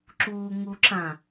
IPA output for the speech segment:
ǁ uː ŋ u ǁ ã

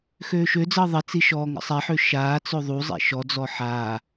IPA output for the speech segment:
x øː ʃ ø d͡z əː ðˤ ə t͡s i ʃ ɔː ŋ ə̰ sˤ ɛ ħ ø ʃ aː t͡s ø ðˤ u zˤ ḛ ʃ ɔ d͡z ɔ ħ aː

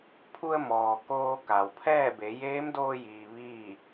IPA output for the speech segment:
pʰ u˧ ə̯ m ɔː˩ k oː˧ k a˩ w pʰ ɛː˥˨ b e˩˧ j eː˧˥ m d oː˧ j iː˩ ʋ iː˥˨

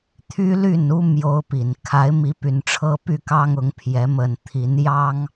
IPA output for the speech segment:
t̪ʰ y˦ l y˥˨ n u˦ m j o˦ ʊ̯ p i˨˩ n kʰ a˨˦ ɪ̯ m i˨˦ p y˨˩ n ʈ͡ʂʰ ɤ˦ p y˥˨ k ɑ˦ ŋ ʊ˨˦ ŋ pʰ j ɛ˨˦ m ə˨˩ n t̪ʰ i˨˦ n j ɑ˦ ŋ

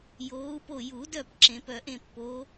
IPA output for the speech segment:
j oː˨˦ u̯ p o˦˨ j u˨˩˦ d œ˦˨ p ǁ ẽ˨˩˦ p œ˨˩˦ ʔ ẽ˦˨ pː oː˨˦

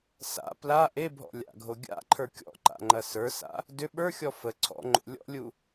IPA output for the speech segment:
s a̰ p l a ʔ e bʱ ɔ̰ lʲ a̰ ɡʱ o ɡʲ a̰ ǃʰ ə˞ kʲ ɔ̰ ǃ a̰ ŋ͡ǃ ɐ s ə˞ s a̰ | d ʏ ɓ ə˞ xʲ ɔ f ə ǀʰ ɔ̰ ŋ͡ǃ o̰ lʲ ɔ̰ lʲ u

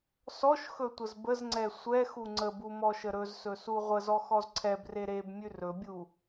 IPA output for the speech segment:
s ɔ ʃ x ɵ tʷ ə z b ə z ŋ͡ǀ ɛ sʷ ɛ x u ŋ͡ǀ ə b u m ɔ ʃ ə ɾ ɵ z s ɵ s u ʁʷ ə z ɔ x ɔ z ǀʰ ɛ b r e ɾ e b mʲ ʉ r ɵ bʲ u

